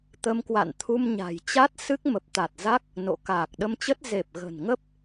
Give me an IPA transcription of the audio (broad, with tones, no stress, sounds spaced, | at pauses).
t̪ ə˧ m k w a̰˧˨ n t̪ʰ u˧ m ɲ a̤˨˩ j t͡ɕ a˦˥ t̚ s ɨ˦˥ k̚ m ə˨˩ p̚ t̪ a˨˩ t̚ z a˦˥ k̚ | n o̰˧˨ k aː˨˩ k̚ ɗ ə˧ m t͡ɕ ə˦˥ t̚ z e˨˩ p̚ ɣ ə̤˨˩ n ŋ ə˦˥ p̚